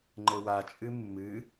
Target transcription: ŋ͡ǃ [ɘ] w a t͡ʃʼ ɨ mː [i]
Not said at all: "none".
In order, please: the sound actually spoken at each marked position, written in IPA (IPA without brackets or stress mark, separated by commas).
ɘ, ɨ